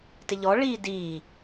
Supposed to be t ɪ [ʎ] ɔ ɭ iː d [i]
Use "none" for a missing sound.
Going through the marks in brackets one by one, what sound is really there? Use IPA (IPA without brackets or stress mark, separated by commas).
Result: ʎ, iː